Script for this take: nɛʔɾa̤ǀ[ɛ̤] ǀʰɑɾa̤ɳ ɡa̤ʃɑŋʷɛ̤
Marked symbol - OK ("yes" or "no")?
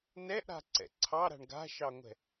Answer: no